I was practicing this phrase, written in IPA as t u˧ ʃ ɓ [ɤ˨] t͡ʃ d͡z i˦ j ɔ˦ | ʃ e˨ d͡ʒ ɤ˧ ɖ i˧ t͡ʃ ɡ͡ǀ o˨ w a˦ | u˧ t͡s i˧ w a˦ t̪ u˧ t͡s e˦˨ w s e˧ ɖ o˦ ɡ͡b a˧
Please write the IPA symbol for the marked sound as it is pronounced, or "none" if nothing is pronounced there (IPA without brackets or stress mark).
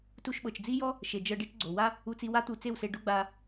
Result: ɤ˨